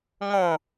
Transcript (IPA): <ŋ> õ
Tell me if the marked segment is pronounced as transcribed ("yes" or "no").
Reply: yes